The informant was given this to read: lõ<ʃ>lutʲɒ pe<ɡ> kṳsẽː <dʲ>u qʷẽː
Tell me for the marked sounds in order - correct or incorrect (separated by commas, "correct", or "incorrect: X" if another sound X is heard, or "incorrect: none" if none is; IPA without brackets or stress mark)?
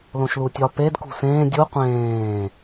correct, incorrect: d, correct